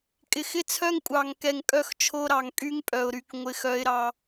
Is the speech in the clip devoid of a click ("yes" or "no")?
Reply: yes